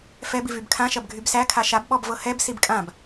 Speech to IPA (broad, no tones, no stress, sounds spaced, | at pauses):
f ɛ b i v y b kʰ ã ʃ ɐ b ɡʱ y b s æ kʰ a ʃ a b ɓ ɔ b v ɤ h ɛ b s i b kʼ ã b